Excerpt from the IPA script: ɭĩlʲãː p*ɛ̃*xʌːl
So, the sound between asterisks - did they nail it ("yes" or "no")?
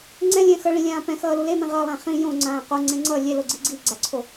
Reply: yes